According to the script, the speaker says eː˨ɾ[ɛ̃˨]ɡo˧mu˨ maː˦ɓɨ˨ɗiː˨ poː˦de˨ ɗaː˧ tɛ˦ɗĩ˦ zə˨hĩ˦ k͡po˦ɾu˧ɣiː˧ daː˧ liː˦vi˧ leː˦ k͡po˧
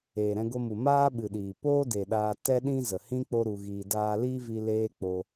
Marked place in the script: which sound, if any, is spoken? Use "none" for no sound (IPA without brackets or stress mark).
ɛ̃˧